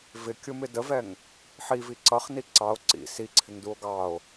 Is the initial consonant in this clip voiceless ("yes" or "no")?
no